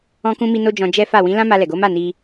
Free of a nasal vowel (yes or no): no